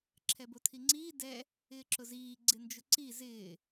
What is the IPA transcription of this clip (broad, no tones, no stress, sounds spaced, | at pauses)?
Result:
ǁʰ ɛ b o tʰ i ŋ͡ǀ iː d ɛ | ɪː ǁ ʊ z iː ɡ͡ǀ ɪ n d͡ʒ ʊ ǀ i z ɪː